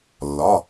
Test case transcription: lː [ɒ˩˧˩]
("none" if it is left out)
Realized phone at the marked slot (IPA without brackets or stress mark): ɒ˩˧˩